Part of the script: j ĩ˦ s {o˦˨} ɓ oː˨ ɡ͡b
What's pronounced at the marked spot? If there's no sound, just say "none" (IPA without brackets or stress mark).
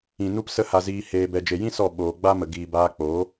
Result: ɔ˦˨